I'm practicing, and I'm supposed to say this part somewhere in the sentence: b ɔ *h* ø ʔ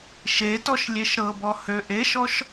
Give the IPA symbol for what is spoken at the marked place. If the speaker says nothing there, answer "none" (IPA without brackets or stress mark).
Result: h